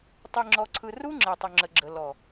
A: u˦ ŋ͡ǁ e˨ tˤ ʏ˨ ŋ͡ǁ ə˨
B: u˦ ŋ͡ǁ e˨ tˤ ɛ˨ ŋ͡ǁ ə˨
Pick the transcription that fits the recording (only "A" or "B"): A